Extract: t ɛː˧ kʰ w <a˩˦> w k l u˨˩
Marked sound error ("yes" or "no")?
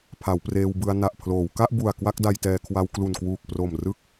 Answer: yes